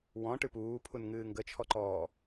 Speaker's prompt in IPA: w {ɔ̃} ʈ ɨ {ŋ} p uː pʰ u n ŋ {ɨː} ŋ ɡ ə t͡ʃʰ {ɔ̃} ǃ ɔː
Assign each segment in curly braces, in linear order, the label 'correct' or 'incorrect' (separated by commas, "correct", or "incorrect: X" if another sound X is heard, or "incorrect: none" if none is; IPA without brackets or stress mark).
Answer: correct, incorrect: none, correct, incorrect: ɔ